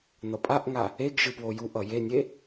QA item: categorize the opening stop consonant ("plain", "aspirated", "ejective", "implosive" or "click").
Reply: ejective